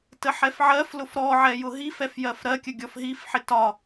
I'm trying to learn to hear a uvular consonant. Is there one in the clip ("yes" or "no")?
no